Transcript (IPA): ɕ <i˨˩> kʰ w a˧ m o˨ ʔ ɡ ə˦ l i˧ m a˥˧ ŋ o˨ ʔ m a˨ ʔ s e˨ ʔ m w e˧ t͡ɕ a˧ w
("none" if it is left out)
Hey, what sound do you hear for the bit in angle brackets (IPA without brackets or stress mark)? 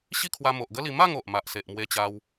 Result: i˥˧